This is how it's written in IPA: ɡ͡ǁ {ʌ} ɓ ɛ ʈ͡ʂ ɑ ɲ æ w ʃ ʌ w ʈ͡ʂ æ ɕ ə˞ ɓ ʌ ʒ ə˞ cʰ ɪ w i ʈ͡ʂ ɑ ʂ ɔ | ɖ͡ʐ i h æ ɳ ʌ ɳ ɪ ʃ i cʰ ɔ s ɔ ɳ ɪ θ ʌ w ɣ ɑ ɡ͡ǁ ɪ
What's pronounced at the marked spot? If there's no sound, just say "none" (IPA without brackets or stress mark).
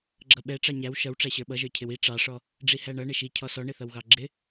ʌ